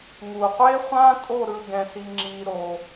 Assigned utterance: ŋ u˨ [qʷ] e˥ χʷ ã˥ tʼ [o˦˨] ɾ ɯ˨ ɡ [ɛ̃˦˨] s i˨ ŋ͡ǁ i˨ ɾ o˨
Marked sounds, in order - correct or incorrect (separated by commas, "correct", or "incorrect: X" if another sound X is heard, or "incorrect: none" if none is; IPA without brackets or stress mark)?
correct, correct, incorrect: ɛ̃˨